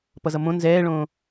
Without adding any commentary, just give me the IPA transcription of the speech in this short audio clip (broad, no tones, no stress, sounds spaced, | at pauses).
p ʌ z ʌ m õ n z ɛː ɭ õː